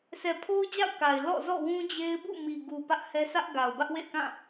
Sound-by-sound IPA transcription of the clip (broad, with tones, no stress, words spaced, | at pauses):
sʰɛ˨pʰo˦ʊ̯d͡ʑa̰˦˨ʊ̯ ka˨ɪ̯ lɔ̰˦˨zɔ̰˦˨wũ˦d͡ʑe˦ɪ̯ bṵ˦˨mi˨ɡu˨ pä˦ʔhɛ˦ sä˦ʔɡa˨ʊ̯ bä˦ʔwḛ˦˨ɪ̯kã˦˨